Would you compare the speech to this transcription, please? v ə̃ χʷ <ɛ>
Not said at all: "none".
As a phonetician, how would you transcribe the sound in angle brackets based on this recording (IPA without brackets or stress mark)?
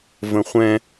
ɛ̃